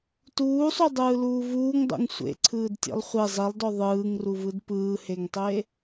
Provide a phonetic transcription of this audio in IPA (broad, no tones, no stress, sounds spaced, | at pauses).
t uː sˤ u dˤ ɯː l uː v uː ŋ dˤ ṵ ŋ sʷ ḛ ǀʰ ɯː d tʲ ḛ lˠ χʷ e zˤ i lˠ d ɔ ðˤ ɯː ŋ r u v ɯ d p ɯː h e ŋ tˤ e